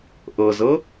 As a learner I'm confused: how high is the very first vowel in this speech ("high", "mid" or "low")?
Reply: mid